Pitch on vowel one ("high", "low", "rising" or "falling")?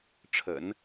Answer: low